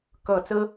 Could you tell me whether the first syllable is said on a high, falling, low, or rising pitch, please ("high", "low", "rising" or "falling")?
low